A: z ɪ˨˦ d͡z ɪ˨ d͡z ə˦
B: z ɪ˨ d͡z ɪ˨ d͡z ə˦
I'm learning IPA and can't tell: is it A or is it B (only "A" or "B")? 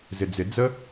B